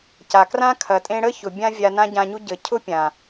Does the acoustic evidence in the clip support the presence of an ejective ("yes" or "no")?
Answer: yes